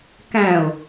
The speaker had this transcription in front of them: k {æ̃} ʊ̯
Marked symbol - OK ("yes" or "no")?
yes